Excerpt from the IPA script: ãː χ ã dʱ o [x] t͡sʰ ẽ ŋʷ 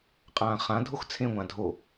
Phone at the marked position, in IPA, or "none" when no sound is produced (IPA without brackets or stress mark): x